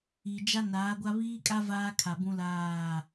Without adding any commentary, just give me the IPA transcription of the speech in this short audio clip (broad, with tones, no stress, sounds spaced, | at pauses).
i˨ d͡ʒ a˦ n aː˨˦ ɡʷ a˦ β iː˦ kʼ a˦ v aː˦ kʰ a˨ b ũ˦ l aː˦˨